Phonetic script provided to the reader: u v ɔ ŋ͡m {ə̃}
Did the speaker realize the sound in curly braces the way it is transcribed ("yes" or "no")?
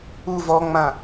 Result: no